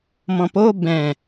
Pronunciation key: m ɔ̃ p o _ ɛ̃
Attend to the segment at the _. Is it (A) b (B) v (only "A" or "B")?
A